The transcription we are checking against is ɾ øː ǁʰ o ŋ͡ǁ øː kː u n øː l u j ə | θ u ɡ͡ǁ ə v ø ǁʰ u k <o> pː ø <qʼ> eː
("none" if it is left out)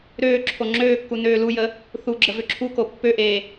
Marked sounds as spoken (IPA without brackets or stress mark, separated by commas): o, ʔ